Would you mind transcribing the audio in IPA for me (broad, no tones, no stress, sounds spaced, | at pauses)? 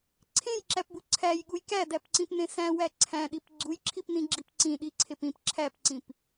ǀʰ ẽ j ǁ æ p b u ǀʰ æ j ɠ u j k æ d æ p ǀ ĩ p n ẽ s æ̃ w æ ǀʰ æ̃ ɗ i p ɡ͡ǀ u j ǁʰ i p n ĩ ɡ͡ǁ i p ǀ ĩ ɗ i ǀʰ e p ĩ p ǁʰ æ p ǀ ĩ p